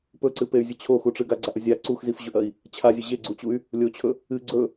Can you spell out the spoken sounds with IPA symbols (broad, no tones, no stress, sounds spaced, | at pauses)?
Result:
p ɵ ǀ ɨ p e y̯ zʲ ɨ t͡ɕʰ o x u ʈ͡ʂ ɨ ɡ a ɡ͡ǀ a ʔ ɵ zʲ a ǀ u x z i f ʑ ɵ ʔ ɐ i̯ | t͡ɕʰ a zʲ ɨ ʑ e ɡ͡ǀ u t͡ɕ u y̯ | lʲ o t͡ɕʰ ɵ | ɨ ɡ͡ǀ ɵ